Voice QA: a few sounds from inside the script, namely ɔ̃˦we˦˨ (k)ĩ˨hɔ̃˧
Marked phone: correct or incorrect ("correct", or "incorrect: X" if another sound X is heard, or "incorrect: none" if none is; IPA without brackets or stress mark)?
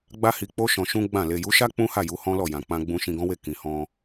correct